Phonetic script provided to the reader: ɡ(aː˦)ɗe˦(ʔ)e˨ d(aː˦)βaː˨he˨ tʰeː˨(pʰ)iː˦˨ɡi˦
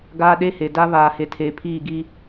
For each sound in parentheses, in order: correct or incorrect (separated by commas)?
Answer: correct, incorrect, incorrect, correct